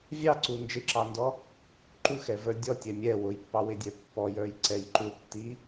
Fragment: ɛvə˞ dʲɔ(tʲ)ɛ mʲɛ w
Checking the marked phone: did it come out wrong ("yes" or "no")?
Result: no